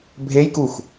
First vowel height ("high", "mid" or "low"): mid